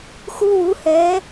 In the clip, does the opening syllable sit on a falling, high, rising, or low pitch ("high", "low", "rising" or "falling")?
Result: high